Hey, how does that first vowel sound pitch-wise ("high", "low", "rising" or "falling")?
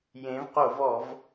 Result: rising